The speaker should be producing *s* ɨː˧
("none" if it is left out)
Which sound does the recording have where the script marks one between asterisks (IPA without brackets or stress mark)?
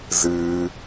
z